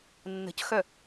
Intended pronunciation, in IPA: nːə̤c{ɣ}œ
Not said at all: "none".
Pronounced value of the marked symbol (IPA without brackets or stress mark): x